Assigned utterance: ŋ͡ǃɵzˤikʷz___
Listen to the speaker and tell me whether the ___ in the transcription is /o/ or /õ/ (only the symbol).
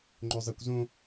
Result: õ